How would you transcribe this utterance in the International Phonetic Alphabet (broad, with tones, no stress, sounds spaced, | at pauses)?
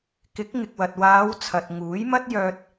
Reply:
k ɪ˨˥ k̚ ŋ ɪ˨ k̚ w ɐ˨ t̚ w aː˨˧ w t͡sʰ ɐ˧ t̚ ŋ uː˨˥ j m ɐ˥ t̚ j œː˧ t̚